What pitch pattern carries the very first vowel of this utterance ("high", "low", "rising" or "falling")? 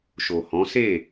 low